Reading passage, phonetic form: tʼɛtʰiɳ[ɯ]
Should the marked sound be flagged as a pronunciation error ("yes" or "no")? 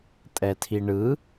no